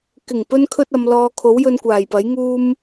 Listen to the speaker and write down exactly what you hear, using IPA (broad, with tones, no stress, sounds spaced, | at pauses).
k ɪ˨˩ ŋ p ɵ˧ n kʰ ɵ˥ t̚ ɐ˨˧ m l ɔː˧ kʰ o˨˥ w j ɵ˧ n kʷ aː˨˩ j p ɐ˨˥ j ŋ uː˥ m